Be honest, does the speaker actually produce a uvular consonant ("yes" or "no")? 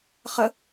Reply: yes